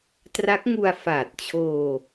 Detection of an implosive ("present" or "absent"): absent